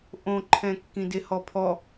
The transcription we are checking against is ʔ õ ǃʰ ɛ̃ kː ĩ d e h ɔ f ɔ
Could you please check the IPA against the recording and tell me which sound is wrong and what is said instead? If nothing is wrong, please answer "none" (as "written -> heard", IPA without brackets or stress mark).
f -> pʰ